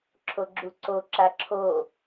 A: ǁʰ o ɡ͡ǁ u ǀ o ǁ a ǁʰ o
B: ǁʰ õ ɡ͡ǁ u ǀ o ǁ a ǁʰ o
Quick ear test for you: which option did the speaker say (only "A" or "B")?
A